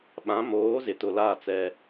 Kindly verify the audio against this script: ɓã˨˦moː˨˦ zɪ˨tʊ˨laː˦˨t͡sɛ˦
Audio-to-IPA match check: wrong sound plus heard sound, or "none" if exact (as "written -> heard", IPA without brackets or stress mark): none